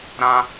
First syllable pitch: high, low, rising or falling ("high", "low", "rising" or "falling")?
high